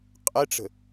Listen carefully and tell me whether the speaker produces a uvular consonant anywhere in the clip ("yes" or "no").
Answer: yes